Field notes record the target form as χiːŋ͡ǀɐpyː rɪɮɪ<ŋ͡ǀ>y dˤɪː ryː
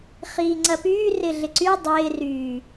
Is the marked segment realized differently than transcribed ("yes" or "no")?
yes